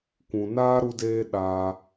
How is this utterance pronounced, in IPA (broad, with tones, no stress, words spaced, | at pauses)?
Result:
kʷũ˨naː˦ ɾu˧deː˧ ɗaː˧